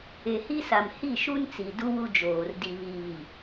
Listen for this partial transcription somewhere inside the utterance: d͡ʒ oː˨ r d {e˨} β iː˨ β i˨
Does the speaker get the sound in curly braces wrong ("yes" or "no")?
yes